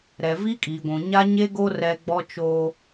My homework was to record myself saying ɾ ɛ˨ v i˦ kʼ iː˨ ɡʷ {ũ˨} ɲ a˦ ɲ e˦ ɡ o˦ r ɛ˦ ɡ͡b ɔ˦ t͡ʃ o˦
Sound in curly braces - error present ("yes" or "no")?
no